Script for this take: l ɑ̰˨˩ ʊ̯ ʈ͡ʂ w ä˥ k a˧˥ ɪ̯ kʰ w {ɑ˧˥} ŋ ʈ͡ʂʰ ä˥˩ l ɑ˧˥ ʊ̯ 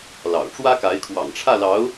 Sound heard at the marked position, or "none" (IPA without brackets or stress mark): ɑ̰˨˩